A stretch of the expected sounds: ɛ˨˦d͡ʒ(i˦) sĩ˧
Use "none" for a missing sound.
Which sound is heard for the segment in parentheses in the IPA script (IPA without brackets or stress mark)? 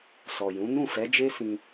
e˦